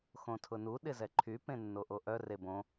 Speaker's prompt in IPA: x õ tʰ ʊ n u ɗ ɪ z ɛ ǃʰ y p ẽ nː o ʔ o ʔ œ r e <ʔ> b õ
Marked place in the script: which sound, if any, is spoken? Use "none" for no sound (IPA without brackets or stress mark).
none